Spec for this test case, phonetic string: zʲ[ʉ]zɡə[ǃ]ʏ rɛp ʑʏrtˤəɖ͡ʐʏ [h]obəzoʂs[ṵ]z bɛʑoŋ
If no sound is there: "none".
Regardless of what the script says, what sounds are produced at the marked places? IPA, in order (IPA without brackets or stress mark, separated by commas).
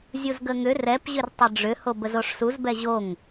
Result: u, ŋ, h, u